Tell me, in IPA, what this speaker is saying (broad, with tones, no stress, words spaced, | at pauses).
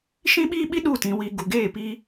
ʃĩ˦ɓiː˦ɓi˦ ɗu˦˨tĩ˨ wi˨ ɡu˨ɡeː˦˨piː˦